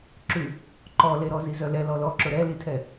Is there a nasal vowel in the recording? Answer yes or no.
no